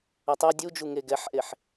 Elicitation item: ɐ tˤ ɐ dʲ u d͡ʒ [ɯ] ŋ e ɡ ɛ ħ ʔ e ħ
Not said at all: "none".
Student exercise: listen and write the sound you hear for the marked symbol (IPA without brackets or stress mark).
u